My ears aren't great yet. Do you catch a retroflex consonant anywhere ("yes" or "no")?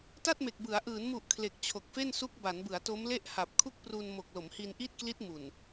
no